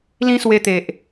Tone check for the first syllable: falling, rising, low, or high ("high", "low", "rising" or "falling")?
high